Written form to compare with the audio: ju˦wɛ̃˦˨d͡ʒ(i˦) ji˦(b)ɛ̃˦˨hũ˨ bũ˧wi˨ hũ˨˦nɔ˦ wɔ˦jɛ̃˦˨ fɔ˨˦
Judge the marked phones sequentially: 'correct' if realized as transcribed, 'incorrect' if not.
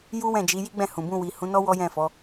incorrect: i˨˦, incorrect: ɡ͡b

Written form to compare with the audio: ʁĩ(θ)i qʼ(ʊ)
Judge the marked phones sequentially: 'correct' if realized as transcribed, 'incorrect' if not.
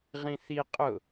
correct, correct

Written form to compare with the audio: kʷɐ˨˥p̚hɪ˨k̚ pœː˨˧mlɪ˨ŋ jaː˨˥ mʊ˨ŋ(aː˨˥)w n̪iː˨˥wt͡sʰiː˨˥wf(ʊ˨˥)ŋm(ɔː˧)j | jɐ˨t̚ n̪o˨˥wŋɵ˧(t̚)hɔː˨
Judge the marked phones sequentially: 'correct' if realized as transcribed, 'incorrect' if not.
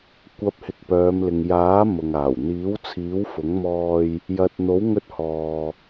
incorrect: aː˨˩, correct, correct, correct

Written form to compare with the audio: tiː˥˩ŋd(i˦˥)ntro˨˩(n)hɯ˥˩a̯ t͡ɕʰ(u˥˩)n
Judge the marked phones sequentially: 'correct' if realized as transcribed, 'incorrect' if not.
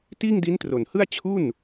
correct, correct, correct

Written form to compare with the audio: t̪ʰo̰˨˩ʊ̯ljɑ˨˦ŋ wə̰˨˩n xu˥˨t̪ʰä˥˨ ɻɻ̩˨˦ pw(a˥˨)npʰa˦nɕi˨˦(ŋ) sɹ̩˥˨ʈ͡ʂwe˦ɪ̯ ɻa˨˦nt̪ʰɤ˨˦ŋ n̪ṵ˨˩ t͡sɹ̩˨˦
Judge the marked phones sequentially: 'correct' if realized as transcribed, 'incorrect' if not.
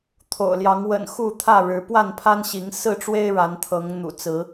correct, correct

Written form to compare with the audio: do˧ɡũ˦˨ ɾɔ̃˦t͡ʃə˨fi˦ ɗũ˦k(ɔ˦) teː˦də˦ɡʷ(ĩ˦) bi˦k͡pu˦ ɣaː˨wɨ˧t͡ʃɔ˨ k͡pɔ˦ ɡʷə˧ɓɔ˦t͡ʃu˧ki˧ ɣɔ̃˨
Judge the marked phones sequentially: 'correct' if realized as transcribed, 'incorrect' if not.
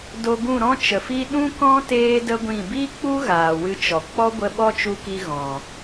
incorrect: ɔ̃˦, incorrect: ĩ˦˨

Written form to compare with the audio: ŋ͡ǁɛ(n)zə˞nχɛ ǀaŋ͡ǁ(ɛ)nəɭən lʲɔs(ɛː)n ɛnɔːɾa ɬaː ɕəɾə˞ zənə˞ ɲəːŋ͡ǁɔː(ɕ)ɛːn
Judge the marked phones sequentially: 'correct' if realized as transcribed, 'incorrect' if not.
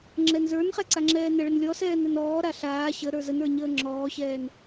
correct, incorrect: ɛː, correct, correct

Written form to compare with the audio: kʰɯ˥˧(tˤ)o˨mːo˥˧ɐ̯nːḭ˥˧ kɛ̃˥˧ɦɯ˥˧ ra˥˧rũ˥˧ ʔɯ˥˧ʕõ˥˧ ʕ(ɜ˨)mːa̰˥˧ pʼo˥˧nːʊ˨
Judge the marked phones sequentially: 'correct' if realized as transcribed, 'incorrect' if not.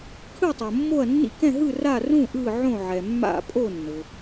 correct, incorrect: ɛ˨

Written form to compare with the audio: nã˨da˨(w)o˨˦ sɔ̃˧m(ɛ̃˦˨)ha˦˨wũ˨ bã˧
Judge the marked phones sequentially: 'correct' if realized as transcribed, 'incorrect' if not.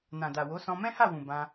correct, incorrect: ɛ̃˦

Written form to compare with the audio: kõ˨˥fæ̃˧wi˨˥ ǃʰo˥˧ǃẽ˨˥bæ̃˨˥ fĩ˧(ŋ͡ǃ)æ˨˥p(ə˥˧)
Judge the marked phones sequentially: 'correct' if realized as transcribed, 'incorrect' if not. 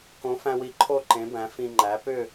correct, incorrect: ʏ˥˧

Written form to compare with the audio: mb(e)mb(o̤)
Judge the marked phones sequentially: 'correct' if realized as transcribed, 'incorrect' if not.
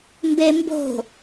correct, correct

